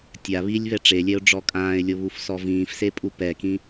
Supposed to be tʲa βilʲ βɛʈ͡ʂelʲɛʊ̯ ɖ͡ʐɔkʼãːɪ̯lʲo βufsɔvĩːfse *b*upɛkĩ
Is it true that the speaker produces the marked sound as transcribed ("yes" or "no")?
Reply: no